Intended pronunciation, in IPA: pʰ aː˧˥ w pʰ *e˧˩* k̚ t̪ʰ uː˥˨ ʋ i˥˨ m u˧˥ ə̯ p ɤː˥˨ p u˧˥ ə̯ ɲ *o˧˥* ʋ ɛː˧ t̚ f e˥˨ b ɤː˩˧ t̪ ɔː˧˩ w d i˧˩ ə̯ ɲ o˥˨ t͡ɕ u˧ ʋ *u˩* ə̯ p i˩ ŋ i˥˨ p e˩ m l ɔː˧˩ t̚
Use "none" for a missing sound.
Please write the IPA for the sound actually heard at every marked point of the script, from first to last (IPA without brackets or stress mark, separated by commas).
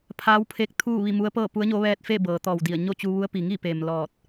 e˧˥, o˧˥, u˧˥